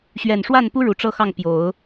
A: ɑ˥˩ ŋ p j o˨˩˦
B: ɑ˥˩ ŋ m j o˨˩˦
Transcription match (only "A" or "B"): A